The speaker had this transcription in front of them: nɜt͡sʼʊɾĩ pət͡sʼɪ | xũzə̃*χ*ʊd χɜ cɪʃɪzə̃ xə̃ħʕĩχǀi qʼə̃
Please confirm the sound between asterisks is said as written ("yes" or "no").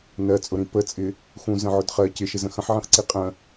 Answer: no